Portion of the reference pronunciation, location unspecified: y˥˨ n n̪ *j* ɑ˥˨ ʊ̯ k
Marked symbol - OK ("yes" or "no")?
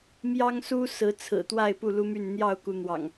yes